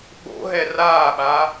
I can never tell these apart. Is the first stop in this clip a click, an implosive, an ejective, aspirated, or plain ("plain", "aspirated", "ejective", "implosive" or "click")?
implosive